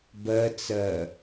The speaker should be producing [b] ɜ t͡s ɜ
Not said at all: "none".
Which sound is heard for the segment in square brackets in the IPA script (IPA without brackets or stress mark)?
b